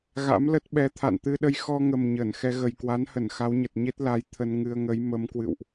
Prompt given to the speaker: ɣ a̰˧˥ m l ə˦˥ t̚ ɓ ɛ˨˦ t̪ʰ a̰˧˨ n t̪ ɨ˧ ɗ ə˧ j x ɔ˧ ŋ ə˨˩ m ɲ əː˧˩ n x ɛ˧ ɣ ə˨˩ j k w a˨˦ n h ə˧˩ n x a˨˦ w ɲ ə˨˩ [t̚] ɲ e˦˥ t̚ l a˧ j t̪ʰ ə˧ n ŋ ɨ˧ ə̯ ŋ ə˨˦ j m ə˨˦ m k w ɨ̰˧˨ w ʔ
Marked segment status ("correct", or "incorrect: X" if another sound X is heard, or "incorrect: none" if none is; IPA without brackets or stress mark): correct